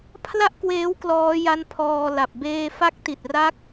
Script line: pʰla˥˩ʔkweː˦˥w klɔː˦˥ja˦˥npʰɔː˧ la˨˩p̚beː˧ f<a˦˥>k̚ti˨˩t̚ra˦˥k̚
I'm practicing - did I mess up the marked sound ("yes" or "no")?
no